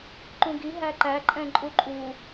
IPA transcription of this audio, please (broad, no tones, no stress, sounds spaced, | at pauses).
ǃ ũ ɡ i ɦ æ ǃ æ ǃʼ ɛ̃ ǃʼ u ǃʼ u